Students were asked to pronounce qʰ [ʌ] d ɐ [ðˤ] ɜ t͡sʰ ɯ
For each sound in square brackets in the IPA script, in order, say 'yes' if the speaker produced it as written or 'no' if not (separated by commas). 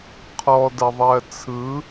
no, yes